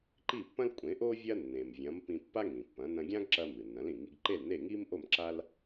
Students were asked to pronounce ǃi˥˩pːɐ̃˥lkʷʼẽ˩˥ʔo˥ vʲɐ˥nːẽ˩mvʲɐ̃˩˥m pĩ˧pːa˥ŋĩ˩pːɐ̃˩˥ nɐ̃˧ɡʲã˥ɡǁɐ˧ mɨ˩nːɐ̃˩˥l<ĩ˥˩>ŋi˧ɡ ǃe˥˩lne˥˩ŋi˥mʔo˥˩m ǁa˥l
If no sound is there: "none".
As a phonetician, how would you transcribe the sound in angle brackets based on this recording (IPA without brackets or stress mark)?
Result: ĩ˩